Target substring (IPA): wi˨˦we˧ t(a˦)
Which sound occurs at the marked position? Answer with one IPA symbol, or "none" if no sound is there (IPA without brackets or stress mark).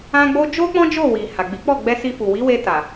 a˨